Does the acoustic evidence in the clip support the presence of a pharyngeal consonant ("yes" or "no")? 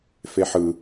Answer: yes